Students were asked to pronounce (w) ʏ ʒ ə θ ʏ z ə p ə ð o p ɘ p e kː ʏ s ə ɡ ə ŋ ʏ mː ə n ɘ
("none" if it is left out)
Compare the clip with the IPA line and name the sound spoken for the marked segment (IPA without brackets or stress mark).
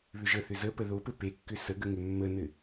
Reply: β